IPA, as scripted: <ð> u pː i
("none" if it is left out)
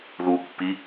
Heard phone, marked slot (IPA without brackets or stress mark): ð